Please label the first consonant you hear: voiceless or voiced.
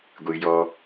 voiced